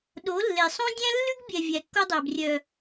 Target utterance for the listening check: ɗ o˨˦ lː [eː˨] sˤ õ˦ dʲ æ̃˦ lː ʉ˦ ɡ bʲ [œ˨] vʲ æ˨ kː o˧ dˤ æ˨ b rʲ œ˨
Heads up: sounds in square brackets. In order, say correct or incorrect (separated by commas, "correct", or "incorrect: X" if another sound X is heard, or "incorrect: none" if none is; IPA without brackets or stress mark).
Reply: incorrect: e˨, incorrect: ɛ˨